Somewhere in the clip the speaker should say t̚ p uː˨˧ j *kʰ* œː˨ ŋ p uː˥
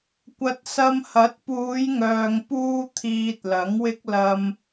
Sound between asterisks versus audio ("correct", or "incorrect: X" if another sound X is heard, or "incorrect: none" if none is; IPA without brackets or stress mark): incorrect: ŋ